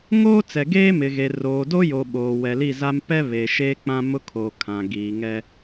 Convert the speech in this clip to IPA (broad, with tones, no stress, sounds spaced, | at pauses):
ŋ oː˦ t͡s ɛ˨ ɡ eː˦ m ɪ˨ ɣ e˨ r oː˨ d o˦ j o˨ ɓ oː˨ w ɛ˨ l i˦˨ z a˦ m p ɛ˦ β e˨ ʃ eː˦ k͡p ã˦ m ʊ˦ kʰ oː˨ kʰ ã˨ ɡ iː˨ ŋ ɛ˦